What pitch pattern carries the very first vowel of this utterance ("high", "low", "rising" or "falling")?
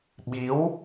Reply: rising